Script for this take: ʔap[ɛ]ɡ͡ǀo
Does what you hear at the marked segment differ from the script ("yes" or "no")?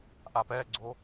no